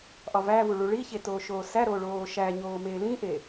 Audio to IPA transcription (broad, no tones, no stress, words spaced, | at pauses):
ʔɒvævu ɭuɭiçe toːʃoːsæɾoː ɭoːʃæɲoː meːlĩʔe